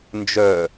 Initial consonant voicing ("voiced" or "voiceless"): voiced